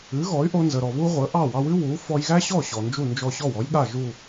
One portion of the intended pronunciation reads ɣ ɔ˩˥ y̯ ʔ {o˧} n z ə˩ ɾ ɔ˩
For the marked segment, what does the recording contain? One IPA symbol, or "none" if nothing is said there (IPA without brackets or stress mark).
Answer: o˧